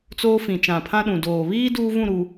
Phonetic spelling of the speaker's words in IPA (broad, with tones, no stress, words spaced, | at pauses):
t͡soː˦fĩ˨ t͡ʃã˨pʰã˦ɗũ˨ doː˨ βiː˦ duː˦ vũ˦˨ɾu˨